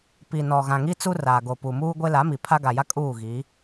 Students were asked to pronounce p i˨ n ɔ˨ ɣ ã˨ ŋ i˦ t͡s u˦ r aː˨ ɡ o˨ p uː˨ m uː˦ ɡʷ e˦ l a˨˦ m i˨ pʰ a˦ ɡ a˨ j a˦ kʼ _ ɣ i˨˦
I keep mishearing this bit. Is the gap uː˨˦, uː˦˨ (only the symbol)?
uː˦˨